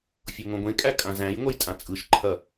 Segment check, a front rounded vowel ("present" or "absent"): absent